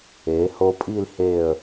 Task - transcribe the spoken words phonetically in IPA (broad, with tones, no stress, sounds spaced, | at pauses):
e˩˧ h o˧ pʼ i˥˧ l h e˧˩ ə̯